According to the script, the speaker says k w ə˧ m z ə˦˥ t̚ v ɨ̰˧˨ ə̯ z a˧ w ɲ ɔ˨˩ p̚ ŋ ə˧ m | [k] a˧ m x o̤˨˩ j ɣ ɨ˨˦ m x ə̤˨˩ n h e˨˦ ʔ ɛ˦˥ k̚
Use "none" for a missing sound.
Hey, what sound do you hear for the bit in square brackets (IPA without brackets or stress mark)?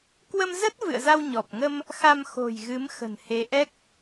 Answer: x